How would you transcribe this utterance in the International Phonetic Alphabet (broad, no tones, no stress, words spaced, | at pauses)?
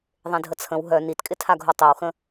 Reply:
ðˤẽdʱət͡sʰə̃w ɦœ nitkʼɪtʰaɡʱo tˤiwxə̃